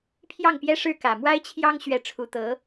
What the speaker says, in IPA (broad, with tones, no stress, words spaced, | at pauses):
pʰjɑ˥˩ŋpjɛ˥ʂɻ̩˥˩ kä˨˩mwa˥ɪ̯t͡ɕʰjɑ˥ŋ ɕɥɛ˥˩ ʈ͡ʂʰu˧˥t̪ɤ˧˥